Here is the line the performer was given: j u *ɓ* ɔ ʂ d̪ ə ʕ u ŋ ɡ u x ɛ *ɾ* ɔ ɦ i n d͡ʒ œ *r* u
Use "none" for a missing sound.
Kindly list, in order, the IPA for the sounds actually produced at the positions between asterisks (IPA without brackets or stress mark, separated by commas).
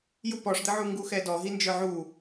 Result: p, d, ʕ